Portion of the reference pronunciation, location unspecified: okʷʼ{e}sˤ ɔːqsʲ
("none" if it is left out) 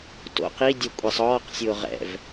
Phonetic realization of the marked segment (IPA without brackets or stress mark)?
e